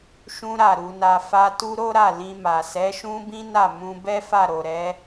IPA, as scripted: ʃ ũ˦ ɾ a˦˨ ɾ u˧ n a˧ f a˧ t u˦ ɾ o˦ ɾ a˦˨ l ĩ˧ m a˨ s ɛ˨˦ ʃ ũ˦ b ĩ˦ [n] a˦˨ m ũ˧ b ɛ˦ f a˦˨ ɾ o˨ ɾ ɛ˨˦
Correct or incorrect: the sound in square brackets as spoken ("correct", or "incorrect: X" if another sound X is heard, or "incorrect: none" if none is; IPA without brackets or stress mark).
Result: correct